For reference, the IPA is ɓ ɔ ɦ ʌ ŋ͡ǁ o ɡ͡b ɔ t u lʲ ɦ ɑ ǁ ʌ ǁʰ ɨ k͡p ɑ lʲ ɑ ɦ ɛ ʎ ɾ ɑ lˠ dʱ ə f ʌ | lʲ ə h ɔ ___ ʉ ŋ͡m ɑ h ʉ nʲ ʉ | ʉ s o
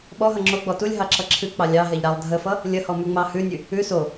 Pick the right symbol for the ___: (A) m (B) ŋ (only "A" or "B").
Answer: A